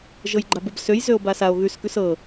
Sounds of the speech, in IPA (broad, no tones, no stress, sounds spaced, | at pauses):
ʒ ɤ j ɡ͡ǃ a b ɤ b s ø j z ø o̯ b a s a o̯ ɣ ʉ s k ʉ s ɤ